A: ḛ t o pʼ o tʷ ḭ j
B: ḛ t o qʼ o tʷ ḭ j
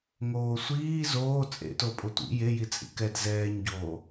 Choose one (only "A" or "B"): A